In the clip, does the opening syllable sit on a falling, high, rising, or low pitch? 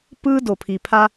high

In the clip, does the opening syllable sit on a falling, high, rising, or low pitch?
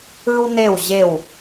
high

